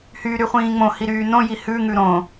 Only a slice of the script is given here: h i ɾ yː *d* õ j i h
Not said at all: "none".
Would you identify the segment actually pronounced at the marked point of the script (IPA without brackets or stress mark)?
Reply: n